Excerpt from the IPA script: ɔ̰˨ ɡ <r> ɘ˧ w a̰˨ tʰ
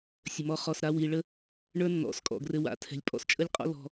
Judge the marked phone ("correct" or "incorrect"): correct